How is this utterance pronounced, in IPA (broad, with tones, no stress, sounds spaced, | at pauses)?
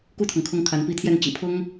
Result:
k u˥˩ t̪ʰ ɤ˩ ŋ kʰ ʊ˧˥ ŋ kʰ a˧˥ n p i˥˧ t̪ʰ j ɛ˥˩ n t͡ɕ ḭ˨˩ pʰ ʊ˥ ŋ